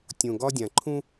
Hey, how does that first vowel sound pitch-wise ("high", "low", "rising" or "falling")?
low